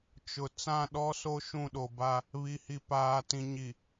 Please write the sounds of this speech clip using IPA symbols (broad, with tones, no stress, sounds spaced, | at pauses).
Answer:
t͡ʃ ʊ˨ t͡s ã˦˨ ɗ ɔ˦ s o˦ ʃ ũ˦˨ ɗ o˨ b a˦ | β i˨ h i˨ p aː˨ t ĩ˨ ɲ i˨